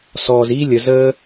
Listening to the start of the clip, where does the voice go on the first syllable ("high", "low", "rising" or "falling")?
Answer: low